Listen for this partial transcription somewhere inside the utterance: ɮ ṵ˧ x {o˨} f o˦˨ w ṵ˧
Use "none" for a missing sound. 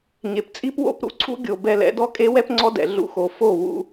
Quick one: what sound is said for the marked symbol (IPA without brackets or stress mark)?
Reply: o˨